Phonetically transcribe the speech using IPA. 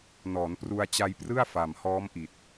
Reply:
nɔː˩˦n pru˧a̯t͡ɕa˧jprɯ˥˩a̯ fa˨˩mhɔː˦˥mʔi˨˩t̚

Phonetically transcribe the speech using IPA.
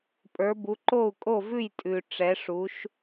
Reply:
pʼə˞˧˥bu˧˥ ǃo˥˨u̯kʼo˥˨vʉ˥˨j tʼʉ˨ ʈ͡ʂɛ˧˥ʂu˧˥ʃ

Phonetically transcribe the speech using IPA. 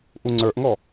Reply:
ʔuŋ͡ǀə˞ʔŋɔ

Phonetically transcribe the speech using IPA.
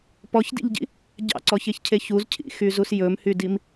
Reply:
pɔçdḭʎɟḭ | ɟɑ̰ǀɔçeçcʰe çuzcʰḭxyzus jɵmhydim

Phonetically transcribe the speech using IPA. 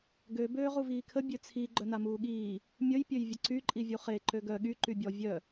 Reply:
ɡø bøːʁuviːkʰə bʲøt͡sʰi ɡ͡ǃœnamuːɠiː | mʲəj pʲøjvʲəǀy ǃʼivʲuχe ǃøɡœ ɠy ǃybʲɔ vʲœ

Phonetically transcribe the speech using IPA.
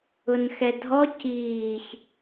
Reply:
ʊnxɛdʱɔ ciːç

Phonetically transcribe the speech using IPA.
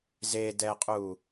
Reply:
zedɛqʼu

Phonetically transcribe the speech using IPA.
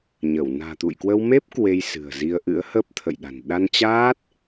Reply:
ɲə˧˩w na̤ː˨˩t̪ṵ˧˨jkwə˧w me˦˥p̚ kwe˧jsɨ̤˨˩ə̯zi˧ə̯ ʔɨ̰˧˥ə̯ hə˦˥p̚ t̪ʰə̰˧˨jɗa̤˨˩n ɗa˧nt͡ɕaː˦˥t̚

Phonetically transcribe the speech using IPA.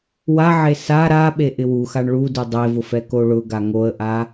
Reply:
waʕe sa ɾaɓe ʔɪwuxaɳ ɭu dudˤevʊ fɛkoɭʊɡa ŋoə̯ʔa

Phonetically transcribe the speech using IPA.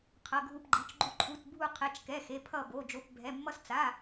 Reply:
qʰʌ˩˧˩ɡʱu˧˩pɡ͡ǃi˩˧˩t͡ʃɡ͡ǃu˧˩ ǃʰu˩˧˩tbʱu˧˩qʰɛ˩˧˩t͡ʃkɛ˩˧˩ xe˩˧˩pʰʌ˧˩ bo˩˧˩d͡ʒo˩˧˩p bʱɛ˩˧˩ mːʌ˧˩st͡sa˩˧˩

